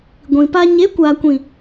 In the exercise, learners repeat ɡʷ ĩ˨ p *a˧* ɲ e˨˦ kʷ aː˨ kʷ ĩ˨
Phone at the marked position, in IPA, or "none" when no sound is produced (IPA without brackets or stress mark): a˧